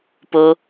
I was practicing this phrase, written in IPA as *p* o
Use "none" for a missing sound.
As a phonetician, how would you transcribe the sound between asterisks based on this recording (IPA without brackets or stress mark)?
p